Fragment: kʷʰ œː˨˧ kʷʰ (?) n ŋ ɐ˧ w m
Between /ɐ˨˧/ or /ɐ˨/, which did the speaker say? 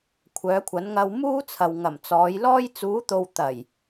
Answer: ɐ˨˧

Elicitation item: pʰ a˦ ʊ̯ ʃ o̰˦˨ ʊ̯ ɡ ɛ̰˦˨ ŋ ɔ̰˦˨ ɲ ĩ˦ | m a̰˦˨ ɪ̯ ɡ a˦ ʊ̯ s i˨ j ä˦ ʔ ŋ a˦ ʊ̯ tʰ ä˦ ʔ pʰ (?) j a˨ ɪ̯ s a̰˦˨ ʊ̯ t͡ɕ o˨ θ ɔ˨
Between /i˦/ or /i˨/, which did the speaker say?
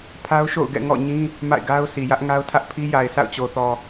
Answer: i˦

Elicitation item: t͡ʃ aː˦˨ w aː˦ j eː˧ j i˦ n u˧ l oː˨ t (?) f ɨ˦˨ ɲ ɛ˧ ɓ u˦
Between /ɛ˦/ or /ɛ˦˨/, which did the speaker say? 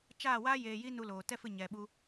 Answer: ɛ˦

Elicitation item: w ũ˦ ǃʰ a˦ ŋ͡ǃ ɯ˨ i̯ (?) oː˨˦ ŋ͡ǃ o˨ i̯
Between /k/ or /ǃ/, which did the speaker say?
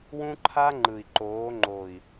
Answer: ǃ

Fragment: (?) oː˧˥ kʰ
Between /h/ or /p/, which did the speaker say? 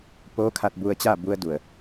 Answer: p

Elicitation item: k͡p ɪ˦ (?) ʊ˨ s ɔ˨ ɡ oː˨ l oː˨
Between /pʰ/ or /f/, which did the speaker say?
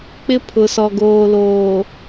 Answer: pʰ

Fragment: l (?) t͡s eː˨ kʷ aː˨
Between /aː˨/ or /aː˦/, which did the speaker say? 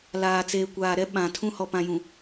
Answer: aː˨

